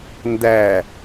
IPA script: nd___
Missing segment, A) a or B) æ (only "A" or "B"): B